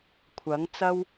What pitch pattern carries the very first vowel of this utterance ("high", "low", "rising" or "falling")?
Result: rising